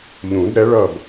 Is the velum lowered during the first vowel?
yes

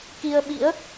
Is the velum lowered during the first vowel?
no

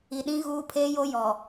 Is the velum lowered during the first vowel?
no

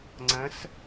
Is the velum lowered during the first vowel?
yes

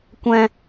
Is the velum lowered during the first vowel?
yes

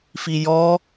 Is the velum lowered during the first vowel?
no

